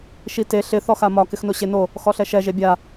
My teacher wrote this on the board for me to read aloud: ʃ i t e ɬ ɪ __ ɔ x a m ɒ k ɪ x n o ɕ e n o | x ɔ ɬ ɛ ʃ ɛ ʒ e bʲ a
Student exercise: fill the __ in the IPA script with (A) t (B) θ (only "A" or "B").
B